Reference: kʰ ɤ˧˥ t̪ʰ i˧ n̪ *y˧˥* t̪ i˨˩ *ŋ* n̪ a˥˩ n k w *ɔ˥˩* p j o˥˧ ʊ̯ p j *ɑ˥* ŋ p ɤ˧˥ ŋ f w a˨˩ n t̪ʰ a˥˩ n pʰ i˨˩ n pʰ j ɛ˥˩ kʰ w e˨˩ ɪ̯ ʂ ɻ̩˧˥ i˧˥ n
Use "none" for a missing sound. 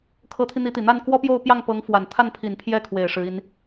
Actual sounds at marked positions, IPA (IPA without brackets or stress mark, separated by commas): i˧˥, none, ɔ˥, ɑ˥˩